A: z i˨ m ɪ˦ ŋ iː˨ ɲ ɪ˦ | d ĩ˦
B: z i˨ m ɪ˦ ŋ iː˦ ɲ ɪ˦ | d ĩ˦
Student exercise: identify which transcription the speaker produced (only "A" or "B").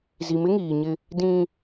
A